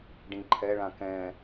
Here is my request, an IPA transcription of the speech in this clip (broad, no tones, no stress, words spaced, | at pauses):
ɖĩǃʰɛɭã kɛ̃